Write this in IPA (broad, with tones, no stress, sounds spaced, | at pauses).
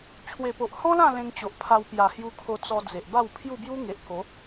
t͡ɕʰ w e˨˩ p o˨ ʔ h ɔ̃˦ l ã˥˧ l ẽ˧ ŋ t͡ɕ o˨ ʔ pʰ a˧ w p j a˨˩ h j u˧ kʰ o˧ t͡s ɔ˧ d͡z e˨ ʔ b a˥˧ w pʰ j u˥˧ b j u˦ ŋ e˨ ʔ k o˨˦